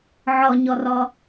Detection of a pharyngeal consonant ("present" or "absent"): present